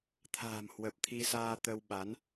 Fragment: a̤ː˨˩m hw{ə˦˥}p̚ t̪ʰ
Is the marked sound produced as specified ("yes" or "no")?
no